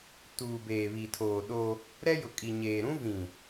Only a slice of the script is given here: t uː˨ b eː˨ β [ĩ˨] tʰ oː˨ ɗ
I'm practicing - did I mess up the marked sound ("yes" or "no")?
yes